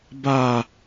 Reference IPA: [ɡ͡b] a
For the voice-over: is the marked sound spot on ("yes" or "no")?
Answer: no